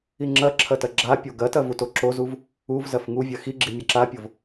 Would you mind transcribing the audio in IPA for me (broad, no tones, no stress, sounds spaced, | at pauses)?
i ŋ͡ǁ ɐ ǁʰ ɐ t ɐ ɡ͡ǁ a pʲ o ɡ ɐ t ɐ v u t o ǁ o z u v | u v z ɐ f ŋ u vʲ ɐ x i ɡ͡ǁ i mʲ ɐ ǁ a pʲ o v